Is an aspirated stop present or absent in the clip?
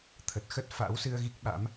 present